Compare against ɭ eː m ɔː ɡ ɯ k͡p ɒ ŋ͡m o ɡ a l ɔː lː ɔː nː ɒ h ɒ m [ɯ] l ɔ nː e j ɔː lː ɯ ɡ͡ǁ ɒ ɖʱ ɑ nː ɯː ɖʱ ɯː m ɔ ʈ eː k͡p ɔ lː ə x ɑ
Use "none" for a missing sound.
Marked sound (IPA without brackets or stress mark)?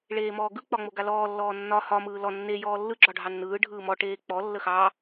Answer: ɯː